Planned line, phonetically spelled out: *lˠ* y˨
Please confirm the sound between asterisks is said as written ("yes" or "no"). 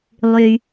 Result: yes